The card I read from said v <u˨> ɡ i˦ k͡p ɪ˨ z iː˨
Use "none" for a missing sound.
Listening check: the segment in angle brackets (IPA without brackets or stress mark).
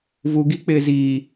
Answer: u˨